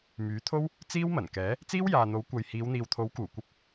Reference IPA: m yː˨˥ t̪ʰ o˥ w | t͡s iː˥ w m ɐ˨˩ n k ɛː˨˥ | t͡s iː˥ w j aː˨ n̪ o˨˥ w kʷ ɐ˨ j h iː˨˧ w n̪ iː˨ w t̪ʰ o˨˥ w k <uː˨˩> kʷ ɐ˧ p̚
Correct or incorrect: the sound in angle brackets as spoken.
correct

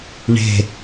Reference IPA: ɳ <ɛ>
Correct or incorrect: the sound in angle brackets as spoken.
incorrect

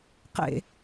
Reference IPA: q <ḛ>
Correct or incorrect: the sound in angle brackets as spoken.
correct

